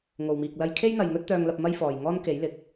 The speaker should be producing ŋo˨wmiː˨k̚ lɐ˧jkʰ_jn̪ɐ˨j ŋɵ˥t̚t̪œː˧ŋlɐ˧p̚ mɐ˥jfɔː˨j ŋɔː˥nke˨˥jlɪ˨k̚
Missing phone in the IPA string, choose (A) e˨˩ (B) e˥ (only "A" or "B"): B